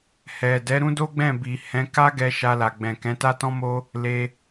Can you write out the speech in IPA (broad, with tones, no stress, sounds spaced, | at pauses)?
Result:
h ɛ˨ d ɛ˨˦ ɾ ũ˦ d o˦ ɡ͡b ɛ̃˦˨ b i˨ h ɛ̃˨˦ k a˦ ɡ ɛ˧ ʃ a˧ l a˨ ɡ͡b ɛ̃˨ k ɛ̃˨˦ t a˦ t ɔ̃˦ m o˦ | l e˧